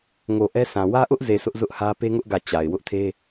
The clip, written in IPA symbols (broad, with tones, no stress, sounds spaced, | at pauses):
ŋ o˨ ʔ ɛ˦ s ã˨ w ä˦ ʔ ʊ˦ ʔ z e˨ s ʊ˦ ʔ z ʊ˦ ʔ h ä˦ p e˦ ŋ ʊ˦ ʔ ɡ ä˦˨ t͡ɕ a˨ ɪ̯ w ʊ˦ ʔ tʰ e˦